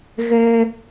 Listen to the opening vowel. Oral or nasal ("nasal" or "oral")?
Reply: oral